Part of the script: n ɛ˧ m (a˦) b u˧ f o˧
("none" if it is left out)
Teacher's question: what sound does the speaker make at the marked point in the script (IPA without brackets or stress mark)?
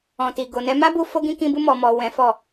a˦